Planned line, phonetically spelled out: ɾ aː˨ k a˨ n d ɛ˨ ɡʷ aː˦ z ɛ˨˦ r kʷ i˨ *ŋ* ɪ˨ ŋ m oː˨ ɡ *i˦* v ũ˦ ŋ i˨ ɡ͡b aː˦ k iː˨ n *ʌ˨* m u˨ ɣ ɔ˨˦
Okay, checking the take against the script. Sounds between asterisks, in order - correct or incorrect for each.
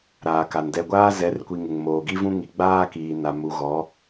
correct, correct, incorrect: a˨

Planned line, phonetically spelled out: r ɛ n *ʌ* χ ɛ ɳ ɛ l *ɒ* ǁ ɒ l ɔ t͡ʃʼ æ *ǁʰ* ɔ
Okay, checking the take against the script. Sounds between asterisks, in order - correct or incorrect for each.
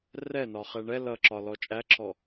incorrect: ɒ, incorrect: ʌ, correct

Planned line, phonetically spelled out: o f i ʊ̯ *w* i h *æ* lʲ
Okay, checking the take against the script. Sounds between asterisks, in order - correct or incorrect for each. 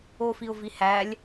incorrect: v, correct

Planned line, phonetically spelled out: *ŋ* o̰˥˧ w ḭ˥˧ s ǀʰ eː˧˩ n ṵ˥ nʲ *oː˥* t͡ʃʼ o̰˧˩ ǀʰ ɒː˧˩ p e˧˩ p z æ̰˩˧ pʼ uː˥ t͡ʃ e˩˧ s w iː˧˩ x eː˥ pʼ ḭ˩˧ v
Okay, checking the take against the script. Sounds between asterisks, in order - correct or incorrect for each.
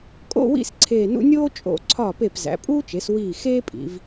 incorrect: kʼ, correct

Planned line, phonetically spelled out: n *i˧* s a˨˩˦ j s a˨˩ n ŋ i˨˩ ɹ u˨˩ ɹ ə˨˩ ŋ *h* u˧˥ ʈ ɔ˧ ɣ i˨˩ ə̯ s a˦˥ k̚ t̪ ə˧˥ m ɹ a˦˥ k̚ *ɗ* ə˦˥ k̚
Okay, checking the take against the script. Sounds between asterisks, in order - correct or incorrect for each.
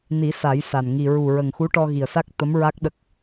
incorrect: i˨˩˦, incorrect: x, correct

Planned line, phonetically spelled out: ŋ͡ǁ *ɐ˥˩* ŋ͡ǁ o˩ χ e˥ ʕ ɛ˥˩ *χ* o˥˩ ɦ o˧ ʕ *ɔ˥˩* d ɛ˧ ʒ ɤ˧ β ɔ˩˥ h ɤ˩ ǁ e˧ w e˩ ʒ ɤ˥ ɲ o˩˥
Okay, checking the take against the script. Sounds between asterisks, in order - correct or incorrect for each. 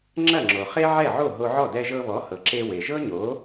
correct, incorrect: ʕ, correct

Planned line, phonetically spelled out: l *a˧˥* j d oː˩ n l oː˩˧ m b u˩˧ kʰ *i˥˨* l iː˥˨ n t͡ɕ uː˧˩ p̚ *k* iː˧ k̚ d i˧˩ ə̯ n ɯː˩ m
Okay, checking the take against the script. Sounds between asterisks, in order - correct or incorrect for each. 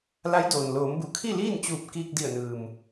correct, correct, correct

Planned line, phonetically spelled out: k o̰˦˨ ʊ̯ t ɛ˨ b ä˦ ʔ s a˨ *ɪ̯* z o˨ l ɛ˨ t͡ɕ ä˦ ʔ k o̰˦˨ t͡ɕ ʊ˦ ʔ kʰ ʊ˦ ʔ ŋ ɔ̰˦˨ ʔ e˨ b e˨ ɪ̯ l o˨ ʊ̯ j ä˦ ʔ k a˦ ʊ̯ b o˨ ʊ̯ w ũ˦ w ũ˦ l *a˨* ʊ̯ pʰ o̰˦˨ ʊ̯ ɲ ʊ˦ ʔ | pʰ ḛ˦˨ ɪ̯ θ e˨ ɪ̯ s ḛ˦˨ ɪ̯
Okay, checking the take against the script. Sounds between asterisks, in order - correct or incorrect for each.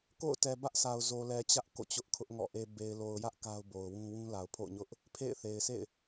incorrect: ʊ̯, correct

